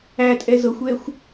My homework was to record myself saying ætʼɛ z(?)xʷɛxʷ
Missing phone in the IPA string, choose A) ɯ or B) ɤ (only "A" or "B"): B